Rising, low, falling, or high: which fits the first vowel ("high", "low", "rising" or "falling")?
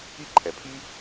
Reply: high